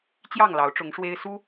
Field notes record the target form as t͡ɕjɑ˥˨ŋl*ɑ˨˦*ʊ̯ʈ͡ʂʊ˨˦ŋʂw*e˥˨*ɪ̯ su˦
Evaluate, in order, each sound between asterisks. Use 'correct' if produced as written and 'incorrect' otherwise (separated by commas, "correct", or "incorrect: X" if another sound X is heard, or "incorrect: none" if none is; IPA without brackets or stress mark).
correct, incorrect: e˦